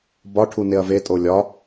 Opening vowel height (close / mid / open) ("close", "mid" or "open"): open